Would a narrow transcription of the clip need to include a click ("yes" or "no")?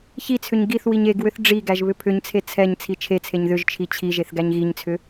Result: no